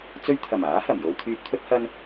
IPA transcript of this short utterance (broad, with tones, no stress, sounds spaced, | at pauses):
t͡s ɵ˧ ɥ t̪ʰ ɐ˨˩ m aː˨˥ h ɐ˨˩ m j o˧ w t̪ʰ yː˧ p̚ t̪ʰ ɵ˥ t̚ h ɐ˥ n